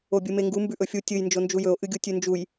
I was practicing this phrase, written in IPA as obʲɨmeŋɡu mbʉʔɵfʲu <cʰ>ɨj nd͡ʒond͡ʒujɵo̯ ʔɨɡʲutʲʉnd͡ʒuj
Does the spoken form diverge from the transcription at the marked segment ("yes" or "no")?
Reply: yes